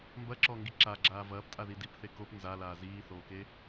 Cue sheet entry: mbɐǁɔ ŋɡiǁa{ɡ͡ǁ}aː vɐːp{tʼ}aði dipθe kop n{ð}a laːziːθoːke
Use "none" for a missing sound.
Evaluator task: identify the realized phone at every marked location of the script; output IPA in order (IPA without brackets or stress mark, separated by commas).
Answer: ɡ͡ǁ, tʼ, z